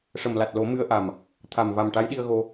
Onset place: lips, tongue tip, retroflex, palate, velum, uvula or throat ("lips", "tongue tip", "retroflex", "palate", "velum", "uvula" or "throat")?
retroflex